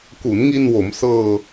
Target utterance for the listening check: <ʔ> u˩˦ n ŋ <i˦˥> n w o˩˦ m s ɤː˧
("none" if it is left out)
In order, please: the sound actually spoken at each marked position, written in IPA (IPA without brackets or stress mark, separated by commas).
k, i˧